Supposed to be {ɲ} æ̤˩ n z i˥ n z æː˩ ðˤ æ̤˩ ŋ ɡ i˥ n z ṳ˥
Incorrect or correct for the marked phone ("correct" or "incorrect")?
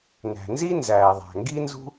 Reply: incorrect